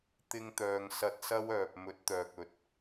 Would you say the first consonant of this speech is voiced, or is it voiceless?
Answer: voiceless